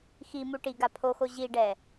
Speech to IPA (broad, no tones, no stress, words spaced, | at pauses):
ximu ʈiɡa pʰoxo ʑiɖɛ